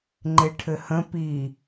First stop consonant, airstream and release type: click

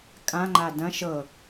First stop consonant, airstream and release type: ejective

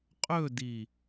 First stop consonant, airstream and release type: ejective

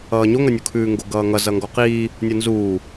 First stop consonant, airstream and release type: aspirated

